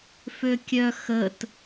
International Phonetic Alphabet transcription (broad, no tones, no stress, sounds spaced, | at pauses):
f ø kʲ œ x ə t